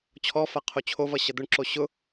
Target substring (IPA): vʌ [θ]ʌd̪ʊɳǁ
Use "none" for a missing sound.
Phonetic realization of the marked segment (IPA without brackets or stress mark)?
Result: ɕ